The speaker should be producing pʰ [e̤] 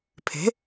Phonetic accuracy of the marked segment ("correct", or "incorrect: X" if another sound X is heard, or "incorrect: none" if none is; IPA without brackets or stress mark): correct